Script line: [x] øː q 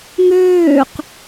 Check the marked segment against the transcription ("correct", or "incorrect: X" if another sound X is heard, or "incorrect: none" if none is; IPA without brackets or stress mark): incorrect: ŋ